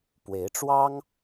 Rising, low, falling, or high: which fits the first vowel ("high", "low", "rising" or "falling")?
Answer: rising